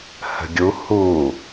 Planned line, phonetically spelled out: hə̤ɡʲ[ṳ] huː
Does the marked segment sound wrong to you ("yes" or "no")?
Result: yes